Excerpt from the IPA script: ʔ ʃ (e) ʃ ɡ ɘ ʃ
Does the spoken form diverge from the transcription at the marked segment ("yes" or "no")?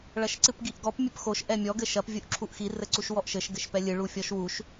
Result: yes